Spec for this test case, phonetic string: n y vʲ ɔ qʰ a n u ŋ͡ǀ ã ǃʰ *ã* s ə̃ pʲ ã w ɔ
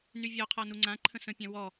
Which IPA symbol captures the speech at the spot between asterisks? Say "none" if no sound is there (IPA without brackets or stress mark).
ə̃